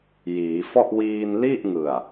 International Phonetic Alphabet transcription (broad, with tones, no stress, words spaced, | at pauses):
jiː˩˦ fɔ˥˩ʔ wiː˧nli˥˩ʔŋɯ˨˩a̯